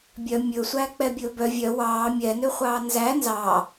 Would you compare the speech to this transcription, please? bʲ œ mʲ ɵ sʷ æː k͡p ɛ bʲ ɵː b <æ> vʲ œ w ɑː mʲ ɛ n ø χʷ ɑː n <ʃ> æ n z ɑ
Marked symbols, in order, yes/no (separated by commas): no, no